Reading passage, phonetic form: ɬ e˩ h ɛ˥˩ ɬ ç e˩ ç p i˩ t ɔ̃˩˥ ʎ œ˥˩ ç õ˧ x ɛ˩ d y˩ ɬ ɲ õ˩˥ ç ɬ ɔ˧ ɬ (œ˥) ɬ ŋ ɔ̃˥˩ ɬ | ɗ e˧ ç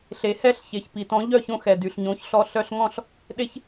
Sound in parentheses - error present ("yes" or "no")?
yes